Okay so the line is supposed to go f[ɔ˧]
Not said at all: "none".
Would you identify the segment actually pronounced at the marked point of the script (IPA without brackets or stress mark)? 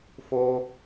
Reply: o˧